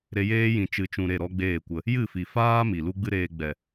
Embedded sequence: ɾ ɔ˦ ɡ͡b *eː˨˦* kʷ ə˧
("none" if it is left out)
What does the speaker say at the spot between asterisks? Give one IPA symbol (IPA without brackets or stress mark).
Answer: eː˦˨